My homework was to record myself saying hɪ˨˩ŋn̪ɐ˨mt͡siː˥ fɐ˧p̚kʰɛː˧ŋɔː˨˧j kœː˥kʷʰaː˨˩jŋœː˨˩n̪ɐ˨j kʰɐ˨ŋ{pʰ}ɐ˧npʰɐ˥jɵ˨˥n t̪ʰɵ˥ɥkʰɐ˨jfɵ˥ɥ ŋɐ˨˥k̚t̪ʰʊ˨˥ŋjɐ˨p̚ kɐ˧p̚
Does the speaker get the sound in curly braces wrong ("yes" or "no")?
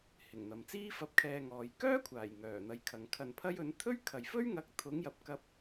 yes